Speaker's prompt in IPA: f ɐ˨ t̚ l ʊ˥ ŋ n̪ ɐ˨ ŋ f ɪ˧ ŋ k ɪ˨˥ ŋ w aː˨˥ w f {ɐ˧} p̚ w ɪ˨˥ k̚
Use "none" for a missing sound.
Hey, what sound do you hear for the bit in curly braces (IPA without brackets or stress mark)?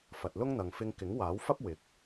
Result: ɐ˥